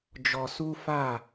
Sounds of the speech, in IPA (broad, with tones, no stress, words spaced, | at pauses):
d͡ʒɔ˧su˦fa˦˨